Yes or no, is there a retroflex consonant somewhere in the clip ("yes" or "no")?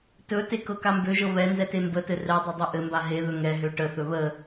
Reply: yes